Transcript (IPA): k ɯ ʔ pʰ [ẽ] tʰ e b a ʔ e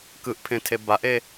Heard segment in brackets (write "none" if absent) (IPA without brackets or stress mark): ẽ